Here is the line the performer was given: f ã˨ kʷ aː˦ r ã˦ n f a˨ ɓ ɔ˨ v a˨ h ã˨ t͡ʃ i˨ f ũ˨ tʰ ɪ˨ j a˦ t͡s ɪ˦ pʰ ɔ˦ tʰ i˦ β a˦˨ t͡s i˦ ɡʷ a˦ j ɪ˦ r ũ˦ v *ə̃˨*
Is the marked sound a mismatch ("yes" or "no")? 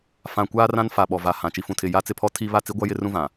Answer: yes